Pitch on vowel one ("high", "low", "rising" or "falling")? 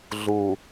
low